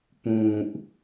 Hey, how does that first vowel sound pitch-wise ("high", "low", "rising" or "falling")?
low